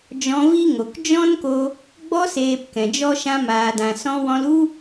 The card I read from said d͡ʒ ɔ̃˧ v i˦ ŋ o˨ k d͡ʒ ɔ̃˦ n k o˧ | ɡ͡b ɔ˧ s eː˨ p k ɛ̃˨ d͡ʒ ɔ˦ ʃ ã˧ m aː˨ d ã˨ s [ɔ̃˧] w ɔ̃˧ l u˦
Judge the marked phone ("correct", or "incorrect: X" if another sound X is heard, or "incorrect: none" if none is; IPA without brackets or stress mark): correct